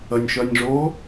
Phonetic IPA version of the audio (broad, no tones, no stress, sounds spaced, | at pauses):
ə nʲ ʃ œ nʲ ʐ oː